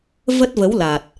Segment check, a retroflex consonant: absent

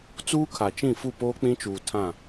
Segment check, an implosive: absent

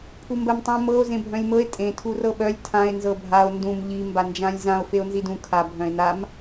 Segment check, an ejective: present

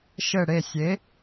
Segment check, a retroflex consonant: present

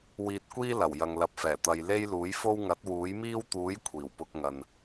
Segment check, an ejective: absent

